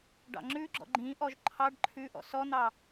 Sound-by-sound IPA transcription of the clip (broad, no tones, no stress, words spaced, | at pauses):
ɖɑ̰ŋ͡ǁʉɡ͡ǁɔ̰ ɡ͡ǃĩʔɔʒ ǃʰɑɖ ǃʰʉʔɔ̰ sɔn̪ɑ